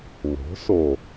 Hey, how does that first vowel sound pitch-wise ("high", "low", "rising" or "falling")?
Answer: rising